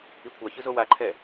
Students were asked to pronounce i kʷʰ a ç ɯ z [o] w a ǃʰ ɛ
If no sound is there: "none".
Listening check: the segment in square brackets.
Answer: o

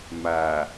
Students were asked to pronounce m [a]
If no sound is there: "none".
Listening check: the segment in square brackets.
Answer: a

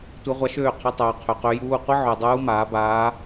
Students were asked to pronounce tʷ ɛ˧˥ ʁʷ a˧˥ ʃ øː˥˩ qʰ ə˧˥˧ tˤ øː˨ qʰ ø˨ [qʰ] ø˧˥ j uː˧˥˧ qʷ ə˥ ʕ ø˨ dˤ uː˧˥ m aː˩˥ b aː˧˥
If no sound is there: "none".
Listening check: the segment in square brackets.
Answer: q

